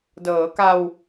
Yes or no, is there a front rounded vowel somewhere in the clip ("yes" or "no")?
no